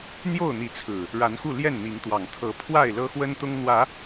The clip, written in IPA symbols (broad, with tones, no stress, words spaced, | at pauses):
n̪jo˥˨ʊ̯n̪i˨˦t͡sʰɹ̩˨˩ | ɻa˨˦nxu˥˨ ljɛ˥˨nn̪i˨˦ŋt̪wɑ˨˩ŋ t̪ʰɤ˨˦pʰwa˥˨ɪ̯lɤ˦ xwə˦nt̪ʊ˦ŋn̪wä˨˦